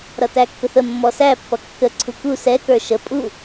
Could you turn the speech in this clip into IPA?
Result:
ɾ ʌ t æ kː ʊ θ ə mː ɔ s æ pː ʌ kː ə ǀʰ u k u s ɛ k ə˞ ʃ ə pʼ u

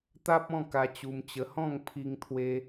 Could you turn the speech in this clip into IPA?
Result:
t̪ a˦ p̚ ɔ̃˥˧ k a˧ t͡ɕ u˧ m t͡ɕ ə˧ h ɔ̃˥˧ ŋ pʰ i˧ ŋ t̪ʰ w e˧

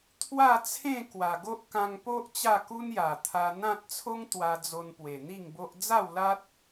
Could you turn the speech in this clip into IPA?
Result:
t̪ʰ w a˥˧ t͡sʰ ẽ˥˧ k w a˨˩ ɡ o˦ ʔ k ã˧ ŋ p o˦ ʔ t͡ɕ a˥˧ k u˦ n j a˨˩ t̪ʰ a˧ n̪ ã˦ t̚ t͡sʰ o˦ ŋ t̪ w a˧ d͡z o˧ n p w e˨˩ n̪ i˥˧ ŋ b o˦ ʔ d͡z a˥˧ w l a˦ t̚

